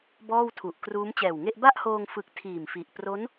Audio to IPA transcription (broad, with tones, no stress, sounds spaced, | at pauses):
b ɔː˥˩ w tʰ u˨˩ ʔ k r uː˦˥ m t͡ɕ ɛː˨˩ w ŋ e˥˩ ʔ b a˥˩ ʔ h oː˧ ŋ f ɯ˨˩ k̚ tʰ iː˨˩ m f i˨˩ ʔ p r o˦˥ n